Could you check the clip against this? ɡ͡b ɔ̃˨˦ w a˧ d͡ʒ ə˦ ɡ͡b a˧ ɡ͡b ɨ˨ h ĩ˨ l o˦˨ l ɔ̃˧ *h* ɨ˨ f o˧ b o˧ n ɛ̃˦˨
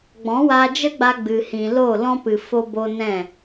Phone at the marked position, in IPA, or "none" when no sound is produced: p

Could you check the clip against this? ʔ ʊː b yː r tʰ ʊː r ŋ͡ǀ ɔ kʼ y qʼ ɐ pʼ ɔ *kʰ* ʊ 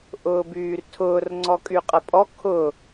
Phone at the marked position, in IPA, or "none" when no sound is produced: kʰ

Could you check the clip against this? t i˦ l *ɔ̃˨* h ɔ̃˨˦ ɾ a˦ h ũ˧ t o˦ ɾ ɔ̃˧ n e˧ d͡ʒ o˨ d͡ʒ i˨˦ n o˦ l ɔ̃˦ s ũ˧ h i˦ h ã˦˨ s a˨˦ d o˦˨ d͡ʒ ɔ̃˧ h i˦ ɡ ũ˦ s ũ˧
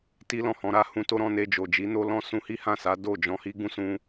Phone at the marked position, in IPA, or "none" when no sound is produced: ɔ̃˦˨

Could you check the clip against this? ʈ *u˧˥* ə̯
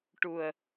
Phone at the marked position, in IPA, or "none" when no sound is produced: u˨˩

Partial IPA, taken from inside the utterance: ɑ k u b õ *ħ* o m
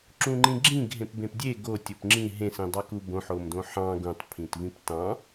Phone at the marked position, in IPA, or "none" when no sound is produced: ħ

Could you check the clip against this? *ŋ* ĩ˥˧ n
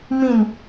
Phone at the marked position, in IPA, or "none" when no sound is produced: m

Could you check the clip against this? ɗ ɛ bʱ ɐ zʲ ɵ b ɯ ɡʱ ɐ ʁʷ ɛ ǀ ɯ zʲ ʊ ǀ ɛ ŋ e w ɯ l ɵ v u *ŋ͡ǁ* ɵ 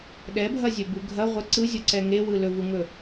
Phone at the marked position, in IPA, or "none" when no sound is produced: ŋ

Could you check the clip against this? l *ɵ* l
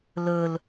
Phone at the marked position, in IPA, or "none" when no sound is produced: ɵ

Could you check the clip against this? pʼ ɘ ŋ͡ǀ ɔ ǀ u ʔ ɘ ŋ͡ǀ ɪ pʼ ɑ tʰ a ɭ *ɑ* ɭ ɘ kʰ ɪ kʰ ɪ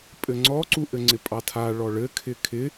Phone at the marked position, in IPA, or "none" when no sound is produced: ɔ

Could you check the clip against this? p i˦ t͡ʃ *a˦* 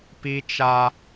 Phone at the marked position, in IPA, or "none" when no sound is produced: a˦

